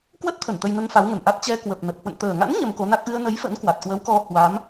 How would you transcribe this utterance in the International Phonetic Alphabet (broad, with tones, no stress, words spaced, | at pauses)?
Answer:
kwə˦˥t̚t̪ʰə˧˩n t̪ə˧jnə˧n fa˨˦wŋə˨˩n ʔa˦˥t̚ t͡ɕɛ˧ kwə˨˩p̚nə˨˩p̚ hwə̰˧˨nt̪əː˨˩ŋa̰˧˥n ɲə˧mko˨˦na˦˥k̚ ʔɨ˧ə̯nə˨˦j fə̰˧˥nkwa˨˩t̚kwə˨˦wkɔ˧ hwa˨˦m